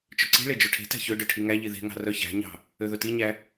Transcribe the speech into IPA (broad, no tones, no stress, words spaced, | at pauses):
t͡ʃɵǀi̤ɭe d͡ʒoʈʰe̤tæ̤ çø ɖɵʈʰiŋæʎi ðe̤ŋɑ̤ rœçæ̤ɲɑ̤ | øðɵtiɲæ